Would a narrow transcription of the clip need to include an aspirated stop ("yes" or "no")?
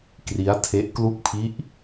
yes